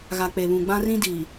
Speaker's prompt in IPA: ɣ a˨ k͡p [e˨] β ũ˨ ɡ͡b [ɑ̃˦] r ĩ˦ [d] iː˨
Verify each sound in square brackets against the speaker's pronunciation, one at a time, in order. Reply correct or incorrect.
correct, incorrect: ã˦, correct

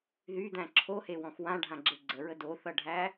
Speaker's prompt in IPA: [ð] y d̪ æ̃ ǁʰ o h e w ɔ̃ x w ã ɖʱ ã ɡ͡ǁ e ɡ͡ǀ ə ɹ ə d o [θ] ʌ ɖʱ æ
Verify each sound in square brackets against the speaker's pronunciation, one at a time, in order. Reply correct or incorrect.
correct, correct

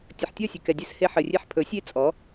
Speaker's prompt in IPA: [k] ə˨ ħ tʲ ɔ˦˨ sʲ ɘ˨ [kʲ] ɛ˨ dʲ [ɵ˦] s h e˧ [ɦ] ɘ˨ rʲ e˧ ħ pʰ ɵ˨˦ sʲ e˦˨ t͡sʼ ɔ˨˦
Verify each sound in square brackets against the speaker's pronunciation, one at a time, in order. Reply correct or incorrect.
incorrect: tʲ, incorrect: k, correct, incorrect: ħ

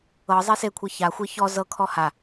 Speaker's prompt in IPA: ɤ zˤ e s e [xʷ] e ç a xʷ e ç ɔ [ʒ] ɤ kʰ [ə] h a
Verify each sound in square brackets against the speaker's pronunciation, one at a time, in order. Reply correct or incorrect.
incorrect: kʷʰ, incorrect: z, incorrect: ɔ

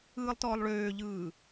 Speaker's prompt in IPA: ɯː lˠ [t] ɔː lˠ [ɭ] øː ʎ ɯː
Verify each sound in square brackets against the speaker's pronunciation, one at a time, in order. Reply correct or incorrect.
correct, correct

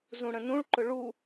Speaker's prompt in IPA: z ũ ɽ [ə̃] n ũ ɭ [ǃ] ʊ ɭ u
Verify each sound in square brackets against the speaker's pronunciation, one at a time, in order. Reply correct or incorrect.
correct, correct

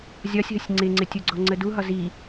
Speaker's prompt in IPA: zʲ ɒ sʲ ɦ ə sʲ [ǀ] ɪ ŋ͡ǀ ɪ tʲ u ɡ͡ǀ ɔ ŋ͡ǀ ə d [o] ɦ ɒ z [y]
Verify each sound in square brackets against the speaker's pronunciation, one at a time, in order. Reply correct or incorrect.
incorrect: ŋ͡ǀ, incorrect: u, incorrect: i

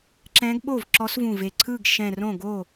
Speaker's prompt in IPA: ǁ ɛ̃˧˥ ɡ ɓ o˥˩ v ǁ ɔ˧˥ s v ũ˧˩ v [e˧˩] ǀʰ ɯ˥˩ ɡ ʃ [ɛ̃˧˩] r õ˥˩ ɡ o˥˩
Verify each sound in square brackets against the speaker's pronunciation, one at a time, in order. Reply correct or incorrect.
correct, correct

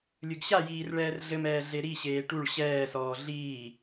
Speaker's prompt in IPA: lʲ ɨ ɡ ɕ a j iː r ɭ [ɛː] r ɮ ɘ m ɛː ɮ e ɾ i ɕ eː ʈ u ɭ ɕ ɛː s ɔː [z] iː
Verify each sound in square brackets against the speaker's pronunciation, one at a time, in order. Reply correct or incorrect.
correct, incorrect: ɮ

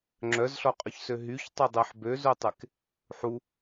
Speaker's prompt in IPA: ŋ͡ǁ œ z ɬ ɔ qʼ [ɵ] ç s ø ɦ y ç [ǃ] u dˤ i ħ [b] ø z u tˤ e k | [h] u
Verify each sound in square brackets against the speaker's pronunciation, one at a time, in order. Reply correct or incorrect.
correct, incorrect: tˤ, correct, incorrect: ħ

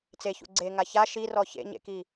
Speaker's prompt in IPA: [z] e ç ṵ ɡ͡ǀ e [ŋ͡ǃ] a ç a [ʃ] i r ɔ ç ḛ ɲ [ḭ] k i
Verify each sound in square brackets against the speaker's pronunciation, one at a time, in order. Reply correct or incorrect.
incorrect: t͡s, incorrect: ŋ, correct, incorrect: ḛ

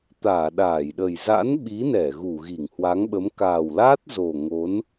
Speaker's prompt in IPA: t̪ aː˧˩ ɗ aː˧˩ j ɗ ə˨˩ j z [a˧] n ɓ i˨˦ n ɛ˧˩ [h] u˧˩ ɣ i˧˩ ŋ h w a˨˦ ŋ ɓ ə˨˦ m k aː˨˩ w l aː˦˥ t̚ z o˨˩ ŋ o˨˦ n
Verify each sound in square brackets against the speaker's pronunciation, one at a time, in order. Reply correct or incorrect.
incorrect: a̰˧˥, incorrect: ɣ

